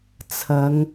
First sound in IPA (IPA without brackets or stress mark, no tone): t͡sʰ